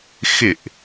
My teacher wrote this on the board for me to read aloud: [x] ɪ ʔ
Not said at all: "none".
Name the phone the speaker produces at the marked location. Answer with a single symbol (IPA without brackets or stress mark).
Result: x